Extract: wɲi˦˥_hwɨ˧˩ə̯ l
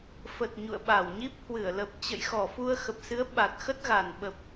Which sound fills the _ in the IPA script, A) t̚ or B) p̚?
B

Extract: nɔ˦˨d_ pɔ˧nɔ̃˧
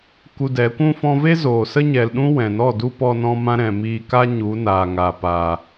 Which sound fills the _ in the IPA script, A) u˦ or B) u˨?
A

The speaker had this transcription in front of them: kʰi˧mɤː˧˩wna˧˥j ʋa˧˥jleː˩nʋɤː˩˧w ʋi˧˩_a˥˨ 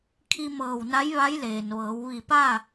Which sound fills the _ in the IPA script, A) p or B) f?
A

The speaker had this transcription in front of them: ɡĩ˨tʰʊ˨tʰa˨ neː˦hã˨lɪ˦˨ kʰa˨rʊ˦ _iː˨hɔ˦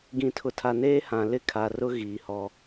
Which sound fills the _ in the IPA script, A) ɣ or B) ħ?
A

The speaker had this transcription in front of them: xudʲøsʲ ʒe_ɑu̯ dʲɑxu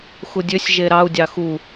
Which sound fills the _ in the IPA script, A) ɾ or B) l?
A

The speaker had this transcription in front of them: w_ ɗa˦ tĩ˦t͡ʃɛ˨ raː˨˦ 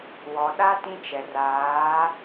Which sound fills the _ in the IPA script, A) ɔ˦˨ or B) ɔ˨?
B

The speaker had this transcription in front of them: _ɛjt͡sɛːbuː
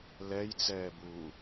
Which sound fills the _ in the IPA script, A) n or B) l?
B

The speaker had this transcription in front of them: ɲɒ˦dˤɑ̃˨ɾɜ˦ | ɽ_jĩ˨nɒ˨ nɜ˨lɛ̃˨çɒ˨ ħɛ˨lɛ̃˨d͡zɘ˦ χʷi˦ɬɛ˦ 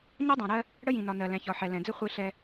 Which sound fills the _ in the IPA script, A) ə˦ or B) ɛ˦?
A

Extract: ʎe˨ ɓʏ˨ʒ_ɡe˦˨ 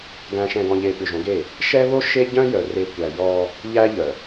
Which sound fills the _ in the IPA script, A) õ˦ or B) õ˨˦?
B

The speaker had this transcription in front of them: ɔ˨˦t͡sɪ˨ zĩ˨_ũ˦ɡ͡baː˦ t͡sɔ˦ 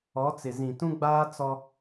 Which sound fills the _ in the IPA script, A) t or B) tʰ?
A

